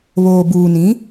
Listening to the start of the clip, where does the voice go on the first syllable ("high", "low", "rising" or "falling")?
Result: low